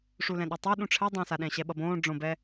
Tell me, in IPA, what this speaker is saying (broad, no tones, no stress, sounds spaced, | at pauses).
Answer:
ʂ u l ɛ̃ ɗ o tˤ o ɗ ũ ʈ͡ʂʰ ɛ dˤ ẽ s a ɗ ɛ̃ ɕ ɛ ɓ ʌ b õː ɖ͡ʐ õ b ɛ